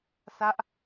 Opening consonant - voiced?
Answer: no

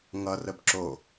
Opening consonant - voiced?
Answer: yes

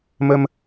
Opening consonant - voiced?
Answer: yes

